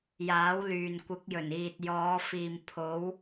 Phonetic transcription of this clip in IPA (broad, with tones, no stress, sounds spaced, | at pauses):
j aː˨˥ w l yː˨ n kʷ ɪ˨˥ k̚ j ɵ˨˩ n iː˨ t̚ j ɔː˨˧ f iː˨ m pʰ o˨˧ w